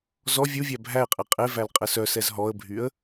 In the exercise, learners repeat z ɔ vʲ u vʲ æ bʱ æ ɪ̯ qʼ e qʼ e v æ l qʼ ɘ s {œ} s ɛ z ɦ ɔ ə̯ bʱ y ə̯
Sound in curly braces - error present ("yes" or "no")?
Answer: no